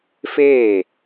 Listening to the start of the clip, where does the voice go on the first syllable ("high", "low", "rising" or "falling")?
falling